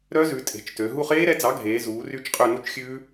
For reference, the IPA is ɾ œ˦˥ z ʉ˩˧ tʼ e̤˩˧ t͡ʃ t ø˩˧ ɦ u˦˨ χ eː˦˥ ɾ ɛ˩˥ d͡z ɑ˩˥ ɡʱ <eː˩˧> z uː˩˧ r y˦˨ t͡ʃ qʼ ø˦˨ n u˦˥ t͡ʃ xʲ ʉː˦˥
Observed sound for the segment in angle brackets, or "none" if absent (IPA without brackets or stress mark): eː˩˧